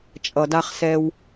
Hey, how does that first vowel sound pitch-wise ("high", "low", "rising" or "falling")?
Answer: low